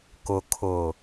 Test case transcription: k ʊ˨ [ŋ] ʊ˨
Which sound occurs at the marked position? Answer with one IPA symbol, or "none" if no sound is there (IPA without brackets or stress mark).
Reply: kʰ